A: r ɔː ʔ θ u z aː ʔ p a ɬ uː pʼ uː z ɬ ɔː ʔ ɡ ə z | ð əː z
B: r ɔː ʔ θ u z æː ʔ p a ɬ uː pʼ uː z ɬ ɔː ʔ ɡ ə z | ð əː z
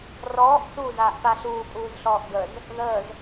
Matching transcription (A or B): A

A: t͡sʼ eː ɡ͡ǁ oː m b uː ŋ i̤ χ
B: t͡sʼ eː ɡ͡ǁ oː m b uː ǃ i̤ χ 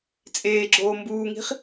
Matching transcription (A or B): A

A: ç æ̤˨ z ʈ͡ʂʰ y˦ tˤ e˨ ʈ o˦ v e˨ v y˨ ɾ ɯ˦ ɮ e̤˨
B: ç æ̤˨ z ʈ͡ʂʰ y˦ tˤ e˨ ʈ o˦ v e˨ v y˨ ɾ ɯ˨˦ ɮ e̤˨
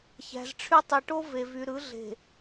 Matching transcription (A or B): B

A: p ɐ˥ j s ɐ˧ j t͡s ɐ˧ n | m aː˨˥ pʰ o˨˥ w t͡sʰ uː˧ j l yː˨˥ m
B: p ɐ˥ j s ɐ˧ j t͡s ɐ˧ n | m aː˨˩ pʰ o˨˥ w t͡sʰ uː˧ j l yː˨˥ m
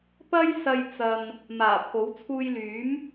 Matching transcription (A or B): B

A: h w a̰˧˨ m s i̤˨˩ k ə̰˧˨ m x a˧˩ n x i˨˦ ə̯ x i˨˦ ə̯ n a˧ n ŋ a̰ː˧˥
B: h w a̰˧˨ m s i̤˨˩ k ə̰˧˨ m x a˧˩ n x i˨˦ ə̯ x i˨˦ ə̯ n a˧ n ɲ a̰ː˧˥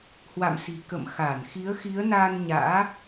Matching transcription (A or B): B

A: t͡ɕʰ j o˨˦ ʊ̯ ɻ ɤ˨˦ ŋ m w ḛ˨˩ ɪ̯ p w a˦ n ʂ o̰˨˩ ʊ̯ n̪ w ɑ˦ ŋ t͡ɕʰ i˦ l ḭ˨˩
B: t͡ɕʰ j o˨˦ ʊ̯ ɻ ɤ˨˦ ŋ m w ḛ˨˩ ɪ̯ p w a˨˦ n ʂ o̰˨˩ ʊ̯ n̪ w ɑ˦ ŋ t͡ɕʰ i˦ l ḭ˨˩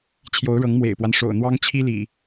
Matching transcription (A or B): A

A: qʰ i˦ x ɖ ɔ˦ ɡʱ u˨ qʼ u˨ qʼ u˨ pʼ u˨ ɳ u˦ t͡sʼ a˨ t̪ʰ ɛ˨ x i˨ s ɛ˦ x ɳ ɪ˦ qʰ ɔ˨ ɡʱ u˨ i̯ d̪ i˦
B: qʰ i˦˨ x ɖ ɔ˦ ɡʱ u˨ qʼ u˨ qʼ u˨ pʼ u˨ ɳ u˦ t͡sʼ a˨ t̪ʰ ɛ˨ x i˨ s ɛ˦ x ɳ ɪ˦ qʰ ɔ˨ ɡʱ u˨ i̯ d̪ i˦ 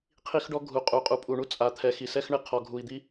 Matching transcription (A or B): A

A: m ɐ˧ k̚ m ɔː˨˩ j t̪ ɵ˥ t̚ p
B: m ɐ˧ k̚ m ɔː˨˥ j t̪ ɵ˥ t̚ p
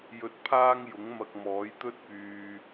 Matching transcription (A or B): B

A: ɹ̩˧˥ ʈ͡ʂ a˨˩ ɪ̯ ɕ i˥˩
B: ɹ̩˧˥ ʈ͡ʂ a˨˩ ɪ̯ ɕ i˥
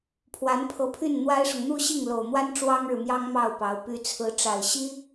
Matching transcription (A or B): B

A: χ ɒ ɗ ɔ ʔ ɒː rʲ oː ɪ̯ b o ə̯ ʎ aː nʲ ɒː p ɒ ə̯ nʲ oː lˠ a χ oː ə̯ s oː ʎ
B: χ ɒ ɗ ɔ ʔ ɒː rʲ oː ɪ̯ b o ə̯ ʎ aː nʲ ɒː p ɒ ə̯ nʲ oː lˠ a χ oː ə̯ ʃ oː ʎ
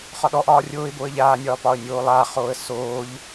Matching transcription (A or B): A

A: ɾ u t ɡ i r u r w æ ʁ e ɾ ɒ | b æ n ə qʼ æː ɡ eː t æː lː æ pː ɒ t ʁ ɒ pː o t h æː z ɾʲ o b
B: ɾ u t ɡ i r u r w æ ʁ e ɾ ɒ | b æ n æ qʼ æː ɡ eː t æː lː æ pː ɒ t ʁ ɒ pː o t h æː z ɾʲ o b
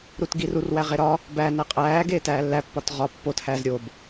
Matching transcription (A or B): B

